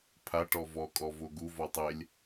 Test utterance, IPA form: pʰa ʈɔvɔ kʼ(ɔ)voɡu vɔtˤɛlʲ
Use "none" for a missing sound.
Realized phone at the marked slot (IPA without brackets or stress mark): ɔ